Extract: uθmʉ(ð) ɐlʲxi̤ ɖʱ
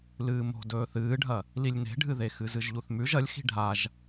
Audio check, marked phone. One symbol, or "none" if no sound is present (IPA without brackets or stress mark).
ʒ